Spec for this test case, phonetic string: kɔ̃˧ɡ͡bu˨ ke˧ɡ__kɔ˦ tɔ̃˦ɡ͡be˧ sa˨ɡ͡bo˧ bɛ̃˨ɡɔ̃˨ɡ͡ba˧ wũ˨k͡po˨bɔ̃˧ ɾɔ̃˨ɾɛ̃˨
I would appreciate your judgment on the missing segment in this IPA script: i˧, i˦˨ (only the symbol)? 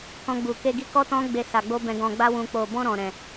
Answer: i˧